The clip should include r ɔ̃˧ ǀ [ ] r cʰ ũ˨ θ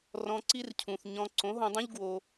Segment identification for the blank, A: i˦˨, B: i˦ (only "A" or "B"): B